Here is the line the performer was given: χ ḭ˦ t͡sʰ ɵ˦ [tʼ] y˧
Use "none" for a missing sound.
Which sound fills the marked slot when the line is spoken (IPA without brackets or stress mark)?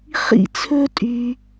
tʼ